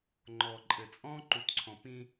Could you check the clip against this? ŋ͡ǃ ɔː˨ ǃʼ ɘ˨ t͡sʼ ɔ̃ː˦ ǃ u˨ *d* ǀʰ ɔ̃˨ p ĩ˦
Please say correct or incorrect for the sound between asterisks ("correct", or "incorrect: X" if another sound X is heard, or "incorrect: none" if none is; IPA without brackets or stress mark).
incorrect: t